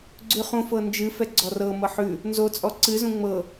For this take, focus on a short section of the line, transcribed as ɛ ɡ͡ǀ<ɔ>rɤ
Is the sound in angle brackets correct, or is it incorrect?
correct